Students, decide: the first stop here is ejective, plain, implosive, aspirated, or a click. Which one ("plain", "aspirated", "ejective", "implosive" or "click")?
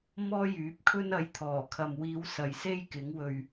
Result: plain